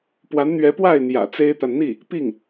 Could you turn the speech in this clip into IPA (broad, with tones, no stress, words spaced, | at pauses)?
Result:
pwa˧˥nn̪ɥɛ˧˥pwa˥˩ɪ̯ n̪jä̰˨˩t͡se˥ɪ̯t̪a˨n n̪i˥˩ | pi˥˩ŋ